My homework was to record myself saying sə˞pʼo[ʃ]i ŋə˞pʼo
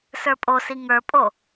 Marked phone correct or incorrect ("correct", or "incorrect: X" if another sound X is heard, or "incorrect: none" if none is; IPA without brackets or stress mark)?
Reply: incorrect: s